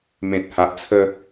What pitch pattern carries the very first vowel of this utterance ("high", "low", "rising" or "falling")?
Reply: low